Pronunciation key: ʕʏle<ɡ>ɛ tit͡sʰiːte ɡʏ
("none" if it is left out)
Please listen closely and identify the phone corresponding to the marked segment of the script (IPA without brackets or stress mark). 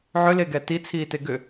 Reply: ɡ